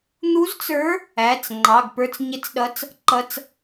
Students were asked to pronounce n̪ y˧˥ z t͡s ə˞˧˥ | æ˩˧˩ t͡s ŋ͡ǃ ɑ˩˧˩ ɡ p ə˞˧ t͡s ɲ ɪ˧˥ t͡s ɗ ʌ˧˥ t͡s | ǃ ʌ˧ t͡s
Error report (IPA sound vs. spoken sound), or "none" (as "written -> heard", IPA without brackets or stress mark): y˧˥ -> u˧˥